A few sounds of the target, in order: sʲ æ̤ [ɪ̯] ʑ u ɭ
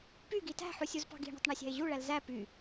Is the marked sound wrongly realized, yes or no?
no